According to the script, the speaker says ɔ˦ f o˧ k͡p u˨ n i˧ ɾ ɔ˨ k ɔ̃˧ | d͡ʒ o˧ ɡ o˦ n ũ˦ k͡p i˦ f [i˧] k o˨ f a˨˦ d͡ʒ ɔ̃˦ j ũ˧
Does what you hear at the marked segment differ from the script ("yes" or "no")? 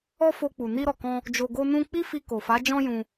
no